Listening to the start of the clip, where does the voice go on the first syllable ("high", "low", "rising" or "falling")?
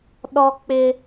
high